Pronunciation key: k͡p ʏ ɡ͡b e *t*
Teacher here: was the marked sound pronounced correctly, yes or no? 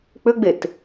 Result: yes